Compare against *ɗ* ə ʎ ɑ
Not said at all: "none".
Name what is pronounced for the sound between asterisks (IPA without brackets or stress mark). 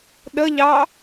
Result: ɗ